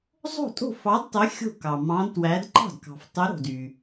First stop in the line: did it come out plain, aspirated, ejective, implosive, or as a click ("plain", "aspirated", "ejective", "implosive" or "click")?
ejective